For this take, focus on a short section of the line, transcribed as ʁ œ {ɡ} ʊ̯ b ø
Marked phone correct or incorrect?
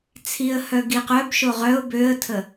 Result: incorrect